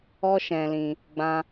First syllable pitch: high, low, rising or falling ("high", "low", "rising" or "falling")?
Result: high